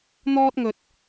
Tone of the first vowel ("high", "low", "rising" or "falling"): high